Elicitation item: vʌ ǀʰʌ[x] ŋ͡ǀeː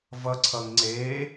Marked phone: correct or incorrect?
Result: incorrect